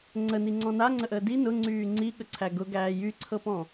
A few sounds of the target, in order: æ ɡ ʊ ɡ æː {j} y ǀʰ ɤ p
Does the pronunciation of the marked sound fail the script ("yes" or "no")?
no